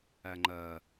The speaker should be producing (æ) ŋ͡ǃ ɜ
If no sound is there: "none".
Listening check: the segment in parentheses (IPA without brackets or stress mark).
æ